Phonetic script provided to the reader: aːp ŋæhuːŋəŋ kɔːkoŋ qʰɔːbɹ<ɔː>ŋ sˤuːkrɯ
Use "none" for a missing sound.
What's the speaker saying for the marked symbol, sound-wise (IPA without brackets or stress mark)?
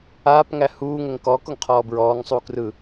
ɔː